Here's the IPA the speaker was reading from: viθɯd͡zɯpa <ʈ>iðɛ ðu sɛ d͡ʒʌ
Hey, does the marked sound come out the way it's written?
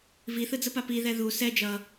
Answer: no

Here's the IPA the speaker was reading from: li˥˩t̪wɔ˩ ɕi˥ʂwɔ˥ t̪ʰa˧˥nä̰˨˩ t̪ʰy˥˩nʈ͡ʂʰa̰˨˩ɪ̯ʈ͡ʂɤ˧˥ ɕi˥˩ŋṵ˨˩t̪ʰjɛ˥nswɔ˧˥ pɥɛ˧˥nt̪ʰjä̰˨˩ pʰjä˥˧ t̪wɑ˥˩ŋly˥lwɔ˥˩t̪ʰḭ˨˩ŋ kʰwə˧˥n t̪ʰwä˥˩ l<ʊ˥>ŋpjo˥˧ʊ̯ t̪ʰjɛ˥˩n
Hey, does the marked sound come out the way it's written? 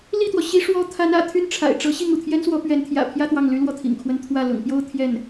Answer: no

